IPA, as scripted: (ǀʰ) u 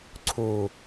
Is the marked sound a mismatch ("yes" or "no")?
no